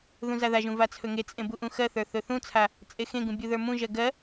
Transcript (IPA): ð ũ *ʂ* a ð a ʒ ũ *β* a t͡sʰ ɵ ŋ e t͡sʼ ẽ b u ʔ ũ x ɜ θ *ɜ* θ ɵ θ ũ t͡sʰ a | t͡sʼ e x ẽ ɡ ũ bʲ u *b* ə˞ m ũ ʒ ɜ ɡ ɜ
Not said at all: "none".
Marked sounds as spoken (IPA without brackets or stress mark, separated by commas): z, v, ə˞, ð